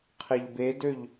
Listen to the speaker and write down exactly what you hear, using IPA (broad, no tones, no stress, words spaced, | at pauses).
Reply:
qʰeʎbedøʎ